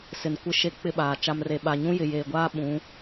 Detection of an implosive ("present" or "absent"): present